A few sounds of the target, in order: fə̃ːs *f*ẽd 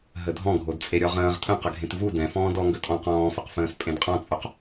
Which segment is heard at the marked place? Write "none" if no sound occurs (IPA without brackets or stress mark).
pʼ